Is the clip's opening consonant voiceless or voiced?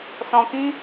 voiceless